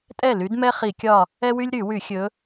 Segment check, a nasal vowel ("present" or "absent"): absent